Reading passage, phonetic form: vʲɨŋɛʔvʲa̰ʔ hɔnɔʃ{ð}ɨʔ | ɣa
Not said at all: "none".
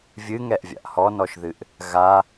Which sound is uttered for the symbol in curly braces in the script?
ð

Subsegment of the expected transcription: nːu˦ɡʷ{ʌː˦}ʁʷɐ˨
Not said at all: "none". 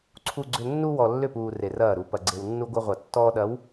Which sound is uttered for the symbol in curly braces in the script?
ʌ˦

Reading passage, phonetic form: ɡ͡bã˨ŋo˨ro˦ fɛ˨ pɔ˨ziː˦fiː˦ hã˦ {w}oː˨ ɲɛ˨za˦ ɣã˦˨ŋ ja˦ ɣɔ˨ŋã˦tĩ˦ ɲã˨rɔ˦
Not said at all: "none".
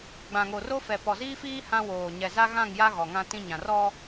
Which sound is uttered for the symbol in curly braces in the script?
w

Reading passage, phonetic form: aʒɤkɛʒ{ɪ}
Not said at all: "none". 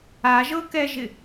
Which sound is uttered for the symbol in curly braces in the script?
ɪ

